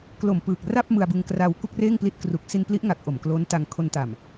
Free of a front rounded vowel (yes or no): yes